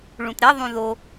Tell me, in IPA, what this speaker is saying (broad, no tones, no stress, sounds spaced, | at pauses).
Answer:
ɭ ũ t ɾ e ðˤ ũ ð o